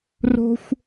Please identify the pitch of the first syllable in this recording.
high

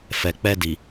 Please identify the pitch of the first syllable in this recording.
low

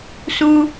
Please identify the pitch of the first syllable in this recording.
high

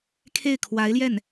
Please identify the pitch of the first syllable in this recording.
falling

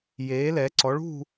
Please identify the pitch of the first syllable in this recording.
rising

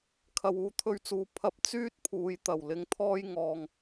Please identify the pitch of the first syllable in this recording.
low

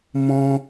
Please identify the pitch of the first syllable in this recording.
high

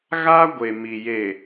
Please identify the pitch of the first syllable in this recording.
high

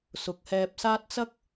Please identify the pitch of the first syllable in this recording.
rising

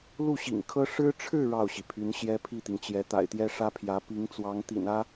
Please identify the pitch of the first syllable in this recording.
falling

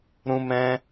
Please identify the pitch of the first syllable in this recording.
high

